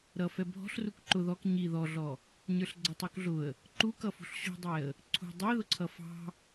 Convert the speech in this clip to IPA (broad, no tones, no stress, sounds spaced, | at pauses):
ɾ ʌ f ɛ bʱ ɔ̤ ɬ r u k ǃ ʊ ð ɔ k ɲ i ð ɔ ɮ ɔ | ɲ ə˞ ɬ ɡ͡ǀ ʌ tˤ u k ɮ ʊ ə̯ | ǃ u k ʌ f ṳ ɬ ɕ ṳ dˤ ɛ ə̯ | ǀʰ ṳ dˤ ɛ ð ʊ ǀʰ ʌ f ɑ̤